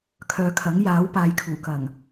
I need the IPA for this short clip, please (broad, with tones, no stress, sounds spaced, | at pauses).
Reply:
kʰ œː˨ kʰ ɐ˨˥ ŋ j aː˨˥ w p aː˨˧ j kʰ uː˨˩ k ɐ˨˩ ŋ